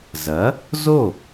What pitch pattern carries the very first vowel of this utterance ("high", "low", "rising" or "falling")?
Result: rising